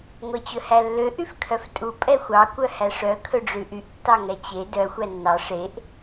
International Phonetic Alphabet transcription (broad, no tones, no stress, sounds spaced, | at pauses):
ŋʷ e t͡ɕ ɵ h æ lː ø ʔ y f kʰ œ f tʼ u pʼ ɛ xʷ ɑ kʷ œ h æ ʂ œ kʰ ɵ ɖ͡ʐ ʉ ʔ y ʔ tː ɑ ŋ ɛ t͡ɕ e d œ xʷ æ nː ɑ ʂ e ʔ